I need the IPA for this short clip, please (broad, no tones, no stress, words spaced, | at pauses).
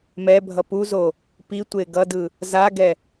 mɛbʱʌ puzo | pitʷe ɡʌdɯ | zaɡɛ